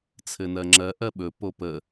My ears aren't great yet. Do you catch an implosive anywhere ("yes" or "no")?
yes